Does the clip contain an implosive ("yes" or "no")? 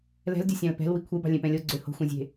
no